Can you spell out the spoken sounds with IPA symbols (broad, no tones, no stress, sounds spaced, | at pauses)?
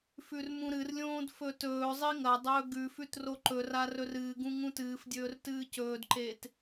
f ʉ r m ũ ɾ ɨ r lʲ õː d f ɵ t ɵː zˤ i ŋ ɐ dˤ ɵː ɡ ʉ f ʉ t r o ǃ ɵ r a r ɵ r ɨː ɡ ũ ŋ ũ t ɨː f dʲ ɵː r t ɨː c ɵː d ǃ eː t